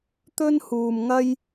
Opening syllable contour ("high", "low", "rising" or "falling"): high